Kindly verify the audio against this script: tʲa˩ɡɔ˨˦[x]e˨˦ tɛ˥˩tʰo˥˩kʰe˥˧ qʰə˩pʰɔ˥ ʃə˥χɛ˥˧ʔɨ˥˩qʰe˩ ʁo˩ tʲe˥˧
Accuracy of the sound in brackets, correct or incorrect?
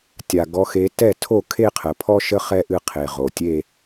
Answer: correct